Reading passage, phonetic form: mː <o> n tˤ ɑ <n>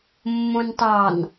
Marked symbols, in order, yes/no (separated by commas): no, yes